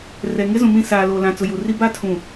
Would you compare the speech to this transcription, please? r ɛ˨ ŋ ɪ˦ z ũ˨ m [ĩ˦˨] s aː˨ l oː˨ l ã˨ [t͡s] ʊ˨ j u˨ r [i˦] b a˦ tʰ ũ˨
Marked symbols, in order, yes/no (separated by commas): yes, yes, yes